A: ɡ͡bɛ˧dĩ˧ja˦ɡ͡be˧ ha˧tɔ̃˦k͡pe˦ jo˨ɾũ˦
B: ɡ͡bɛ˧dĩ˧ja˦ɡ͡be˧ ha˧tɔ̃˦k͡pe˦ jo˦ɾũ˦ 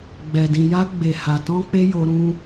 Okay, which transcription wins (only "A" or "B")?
B